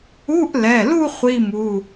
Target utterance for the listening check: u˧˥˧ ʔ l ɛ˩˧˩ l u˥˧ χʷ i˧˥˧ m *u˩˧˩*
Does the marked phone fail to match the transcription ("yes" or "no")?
no